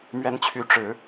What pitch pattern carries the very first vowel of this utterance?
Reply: rising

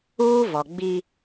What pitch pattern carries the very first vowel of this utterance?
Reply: high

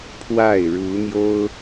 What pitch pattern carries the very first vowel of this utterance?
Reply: falling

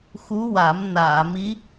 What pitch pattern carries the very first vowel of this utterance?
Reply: rising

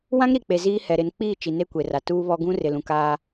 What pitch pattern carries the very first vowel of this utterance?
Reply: high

